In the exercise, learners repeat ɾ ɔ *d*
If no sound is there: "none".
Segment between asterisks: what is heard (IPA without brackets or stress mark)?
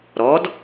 d